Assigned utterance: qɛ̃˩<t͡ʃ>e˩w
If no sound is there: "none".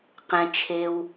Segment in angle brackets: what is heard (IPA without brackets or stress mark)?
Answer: t͡ʃʰ